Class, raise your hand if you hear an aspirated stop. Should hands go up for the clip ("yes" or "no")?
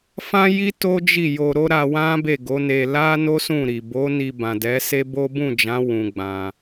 no